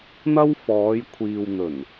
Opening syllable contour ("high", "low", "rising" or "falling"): high